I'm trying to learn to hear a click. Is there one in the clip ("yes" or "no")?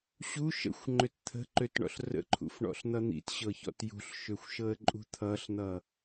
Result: yes